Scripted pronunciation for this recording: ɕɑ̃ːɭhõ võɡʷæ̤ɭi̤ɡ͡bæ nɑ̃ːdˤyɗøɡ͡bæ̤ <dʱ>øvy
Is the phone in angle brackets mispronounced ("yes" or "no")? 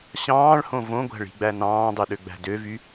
yes